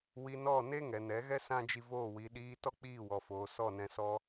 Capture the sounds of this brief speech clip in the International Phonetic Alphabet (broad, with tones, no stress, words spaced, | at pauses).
wi˧nɔ˦˨ne˦ ŋɛ˨nɛ˨˦ɣɛ˦ sã˦d͡ʒi˧voː˦˨wi˨˦ ɗiː˧ tɔ˦k͡piː˦˨wɔ˨foː˨ sɔ˦˨nɛ̃˧sɔ˦